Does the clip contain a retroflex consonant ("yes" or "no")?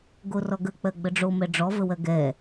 yes